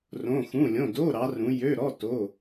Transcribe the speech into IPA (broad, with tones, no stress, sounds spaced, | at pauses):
r õ˧˥˧ x ũ˧˥˧ lʲ õ˧˥˧ d o˧˥˧ ɾ ɑ˨˦ r ũ˨˦ j ø˧˥˧ ɾ ɔ˧˥˧ t o˧˥˧